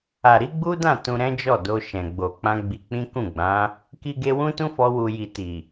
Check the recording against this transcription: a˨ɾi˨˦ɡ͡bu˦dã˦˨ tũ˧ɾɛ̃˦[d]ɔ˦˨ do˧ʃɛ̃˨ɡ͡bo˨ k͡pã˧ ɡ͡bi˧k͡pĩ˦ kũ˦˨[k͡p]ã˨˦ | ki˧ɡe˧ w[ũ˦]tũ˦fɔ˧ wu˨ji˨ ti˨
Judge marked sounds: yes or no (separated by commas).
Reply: no, no, yes